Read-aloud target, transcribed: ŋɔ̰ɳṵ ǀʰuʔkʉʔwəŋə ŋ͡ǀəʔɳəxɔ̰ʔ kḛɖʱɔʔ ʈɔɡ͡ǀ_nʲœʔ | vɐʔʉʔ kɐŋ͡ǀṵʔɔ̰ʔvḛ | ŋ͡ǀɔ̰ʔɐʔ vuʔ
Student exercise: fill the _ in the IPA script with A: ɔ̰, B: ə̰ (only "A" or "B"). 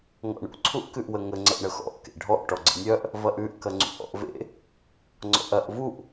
B